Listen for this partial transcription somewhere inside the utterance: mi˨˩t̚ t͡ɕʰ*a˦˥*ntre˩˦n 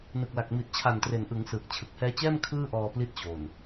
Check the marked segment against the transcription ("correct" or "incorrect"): incorrect